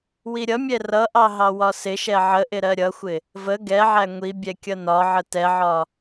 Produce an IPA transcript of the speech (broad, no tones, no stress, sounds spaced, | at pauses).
w i ɾʲ ʌ mʲ ɛ r ʌ ʔ ɑ ɦ ɑ w ɒ s ɪ ʃ ɛ ʕ ə ʔ ɪ ɾ ɜ ɾʲ ʌ xʷ ɪ | v ə ɡ ɛ ʕ æ ŋʷ i bʲ ɛ kʲ ʌ n ɒ ʕ ə t ɛ ʕ ɒ